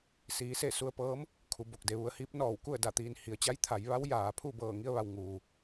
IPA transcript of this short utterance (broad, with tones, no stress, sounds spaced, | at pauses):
s iː˩˧ s e˧˩ s u˧ ə̯ p ɤː˧˥ m | kʰ u˩˧ b o˧˩ k̚ d e˩˧ ʋ u˩˧ ə̯ h iː˧˥ p̚ n ɔː˧˩ w k u˥˨ ə̯ d a˧˩ t̪ iː˩ n h i˩˧ ə̯ t͡ɕ a˧˥ j t̪ʰ a˩˧ j ʋ a˧˥ w j aː˩ pʰ uː˥˨ b ɤː˧˩ ŋ i˧ ə̯ ʋ a˩ w ŋ uː˩